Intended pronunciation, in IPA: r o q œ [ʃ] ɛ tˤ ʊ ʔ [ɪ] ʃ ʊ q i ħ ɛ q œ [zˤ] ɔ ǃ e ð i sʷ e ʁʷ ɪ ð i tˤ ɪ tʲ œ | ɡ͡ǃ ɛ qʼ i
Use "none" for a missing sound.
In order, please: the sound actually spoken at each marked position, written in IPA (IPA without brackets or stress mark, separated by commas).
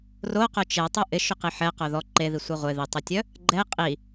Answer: t͡ʃ, ɪ, ð